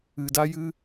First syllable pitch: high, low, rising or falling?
low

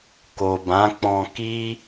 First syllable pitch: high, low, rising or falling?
low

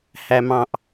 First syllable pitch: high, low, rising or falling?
high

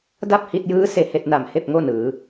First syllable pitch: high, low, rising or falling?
falling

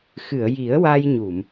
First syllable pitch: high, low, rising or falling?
low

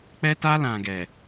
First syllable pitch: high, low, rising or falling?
high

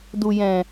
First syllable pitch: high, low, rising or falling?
low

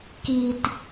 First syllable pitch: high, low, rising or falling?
low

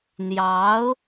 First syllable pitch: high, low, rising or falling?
rising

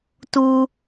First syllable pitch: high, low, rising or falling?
high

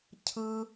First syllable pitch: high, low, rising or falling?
high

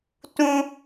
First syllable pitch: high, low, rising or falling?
high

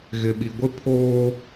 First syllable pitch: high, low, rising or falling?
low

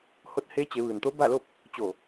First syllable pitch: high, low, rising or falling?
rising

